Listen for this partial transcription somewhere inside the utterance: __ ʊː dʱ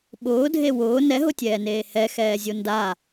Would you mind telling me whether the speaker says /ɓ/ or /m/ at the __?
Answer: ɓ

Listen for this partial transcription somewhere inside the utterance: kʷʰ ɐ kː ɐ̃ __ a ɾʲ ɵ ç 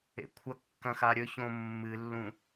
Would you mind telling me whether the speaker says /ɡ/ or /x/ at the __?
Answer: x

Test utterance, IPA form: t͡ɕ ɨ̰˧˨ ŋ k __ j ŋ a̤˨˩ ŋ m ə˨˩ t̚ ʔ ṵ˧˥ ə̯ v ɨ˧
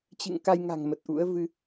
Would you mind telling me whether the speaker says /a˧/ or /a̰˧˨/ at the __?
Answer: a˧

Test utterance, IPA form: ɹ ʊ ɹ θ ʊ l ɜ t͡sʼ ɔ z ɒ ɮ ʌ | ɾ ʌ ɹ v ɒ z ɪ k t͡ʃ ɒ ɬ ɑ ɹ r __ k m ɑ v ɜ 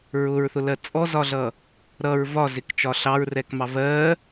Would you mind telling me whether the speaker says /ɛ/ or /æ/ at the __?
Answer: ɛ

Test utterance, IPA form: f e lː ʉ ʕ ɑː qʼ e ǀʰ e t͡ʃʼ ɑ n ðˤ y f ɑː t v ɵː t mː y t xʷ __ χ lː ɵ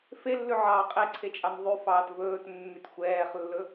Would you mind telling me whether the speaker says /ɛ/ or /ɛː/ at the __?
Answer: ɛː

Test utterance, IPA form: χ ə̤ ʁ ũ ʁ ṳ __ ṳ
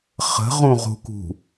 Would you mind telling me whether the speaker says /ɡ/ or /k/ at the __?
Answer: k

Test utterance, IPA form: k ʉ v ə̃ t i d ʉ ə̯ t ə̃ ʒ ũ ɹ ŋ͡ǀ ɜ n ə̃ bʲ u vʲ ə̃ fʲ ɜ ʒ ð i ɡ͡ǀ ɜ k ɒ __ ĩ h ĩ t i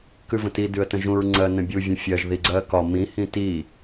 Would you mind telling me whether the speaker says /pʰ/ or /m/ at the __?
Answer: m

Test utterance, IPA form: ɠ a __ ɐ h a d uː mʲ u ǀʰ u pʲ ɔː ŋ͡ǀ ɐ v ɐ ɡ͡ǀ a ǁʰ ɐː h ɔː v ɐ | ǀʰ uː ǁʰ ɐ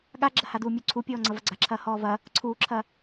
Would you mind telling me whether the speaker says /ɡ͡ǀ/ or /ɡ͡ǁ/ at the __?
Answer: ɡ͡ǁ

